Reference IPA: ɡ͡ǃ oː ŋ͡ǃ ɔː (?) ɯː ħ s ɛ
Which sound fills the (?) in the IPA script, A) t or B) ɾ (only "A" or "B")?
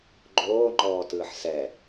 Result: A